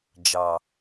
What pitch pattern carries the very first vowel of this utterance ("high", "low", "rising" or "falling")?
low